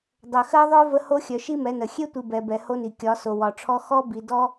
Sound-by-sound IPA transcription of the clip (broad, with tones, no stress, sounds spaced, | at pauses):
dˤ œ˨ x ɜ˦ ðˤ œ˦ v ə˦ h o˦ xʲ œ˨ ʃ i˦ m ɛ˨˦ n ə˨ xʲ e˦ tʷ i˨ b ɛ˨ b ɛ˨ h o˦ n i˨ kʲ ɒ˨˦ s o˨ w ɒ˨ ʈ͡ʂʰ ɔ˦ x ɔ˦ b i˨ d ɔ˦